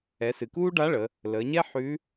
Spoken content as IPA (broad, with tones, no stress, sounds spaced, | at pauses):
ɛ˩˧ s ɨ˩ k uː˥ ɖ a˧˥ ɭ ə˩˧ | l əː˩˧ ɲ ɛ˥ ħ ʉ˧˥